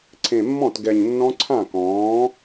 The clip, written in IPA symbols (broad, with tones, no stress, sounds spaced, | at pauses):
ǀʰ ẽ˨˩ mː ɔ̃˥˩ t ɡ ɛ˨˩ ɲ nː ɔ̃˦˥ ǀʰ ã˥˩ k ɔ̃ː˩˥